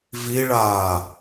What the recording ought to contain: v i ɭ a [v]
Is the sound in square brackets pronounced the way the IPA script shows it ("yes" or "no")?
no